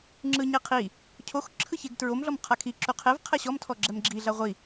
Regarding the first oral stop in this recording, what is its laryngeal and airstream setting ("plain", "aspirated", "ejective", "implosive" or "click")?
click